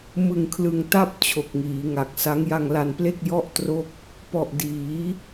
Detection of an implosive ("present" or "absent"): absent